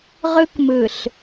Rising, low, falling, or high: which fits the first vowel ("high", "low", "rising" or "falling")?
high